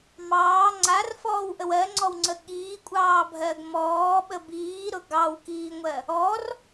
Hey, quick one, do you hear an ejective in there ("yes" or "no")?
yes